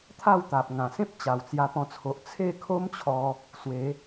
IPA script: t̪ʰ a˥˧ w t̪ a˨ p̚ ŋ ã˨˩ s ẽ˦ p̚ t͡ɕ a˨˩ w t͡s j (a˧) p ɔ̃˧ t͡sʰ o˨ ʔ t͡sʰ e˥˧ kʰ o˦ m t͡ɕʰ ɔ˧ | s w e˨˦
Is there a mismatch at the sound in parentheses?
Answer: no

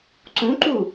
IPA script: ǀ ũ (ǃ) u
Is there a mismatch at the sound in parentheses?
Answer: no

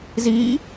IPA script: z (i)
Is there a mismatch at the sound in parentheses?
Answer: no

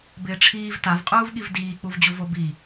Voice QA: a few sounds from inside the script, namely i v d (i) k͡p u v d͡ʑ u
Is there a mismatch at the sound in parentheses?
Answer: yes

